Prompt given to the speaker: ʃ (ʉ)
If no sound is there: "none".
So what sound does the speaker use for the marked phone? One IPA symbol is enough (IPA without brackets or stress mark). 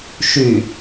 ʉ